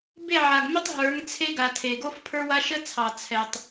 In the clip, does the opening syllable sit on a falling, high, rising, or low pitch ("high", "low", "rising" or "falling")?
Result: falling